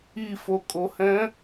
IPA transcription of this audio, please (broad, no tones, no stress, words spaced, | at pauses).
ifokʼohɛ̃